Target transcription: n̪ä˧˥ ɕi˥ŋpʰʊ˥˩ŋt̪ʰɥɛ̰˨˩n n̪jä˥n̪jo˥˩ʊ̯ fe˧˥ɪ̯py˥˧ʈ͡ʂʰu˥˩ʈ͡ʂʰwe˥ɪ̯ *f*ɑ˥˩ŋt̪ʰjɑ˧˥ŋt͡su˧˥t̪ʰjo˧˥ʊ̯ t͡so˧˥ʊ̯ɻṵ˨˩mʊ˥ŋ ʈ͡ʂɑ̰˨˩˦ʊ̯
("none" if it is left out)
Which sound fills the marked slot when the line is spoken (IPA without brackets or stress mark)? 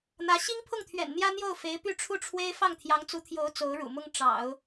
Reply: f